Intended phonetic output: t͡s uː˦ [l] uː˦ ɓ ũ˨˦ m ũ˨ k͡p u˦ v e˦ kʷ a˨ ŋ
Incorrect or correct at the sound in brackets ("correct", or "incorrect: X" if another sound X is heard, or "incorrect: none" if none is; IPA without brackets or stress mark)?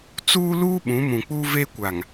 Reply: correct